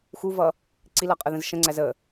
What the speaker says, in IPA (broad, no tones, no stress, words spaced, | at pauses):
xuvʌ | ǀilʌqʼəðə̃z ʃə̃ŋ͡ǀæz ə